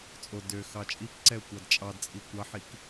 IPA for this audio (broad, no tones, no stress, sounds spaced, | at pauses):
t͡sʼ o d ø x ɑ t͡ʃʼ i k ǀ ɛ ʊ̯ kʷ ɑ d t͡ʃʼ ɑ d t͡sʼ i kʷ ɑ ħ i k